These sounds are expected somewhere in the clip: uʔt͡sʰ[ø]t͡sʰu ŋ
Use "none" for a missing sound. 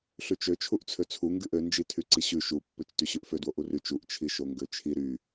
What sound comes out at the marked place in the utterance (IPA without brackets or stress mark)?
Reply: ø